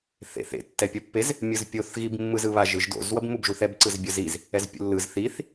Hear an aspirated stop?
no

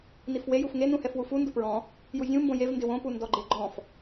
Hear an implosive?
no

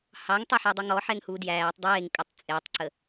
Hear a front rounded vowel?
no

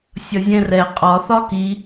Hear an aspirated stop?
no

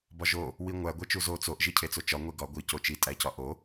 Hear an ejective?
yes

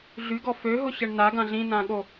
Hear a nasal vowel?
yes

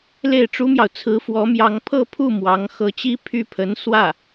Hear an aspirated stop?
yes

